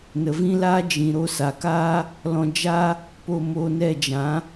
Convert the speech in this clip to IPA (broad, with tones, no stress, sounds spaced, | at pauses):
n ə˨ v ĩ˦ l aː˦ d͡ʒ ĩ˨ ɾ o˧ s a˨ k aː˦ | l ɔ̃˧ d͡ʒ a˦ | p o˧ m oː˧ n ɛ˦˨ d͡ʒ ã˨˦